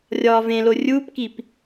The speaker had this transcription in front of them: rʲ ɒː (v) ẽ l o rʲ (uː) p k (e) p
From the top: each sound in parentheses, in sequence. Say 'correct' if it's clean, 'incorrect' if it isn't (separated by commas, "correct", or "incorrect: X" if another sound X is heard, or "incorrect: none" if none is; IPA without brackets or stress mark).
correct, correct, incorrect: i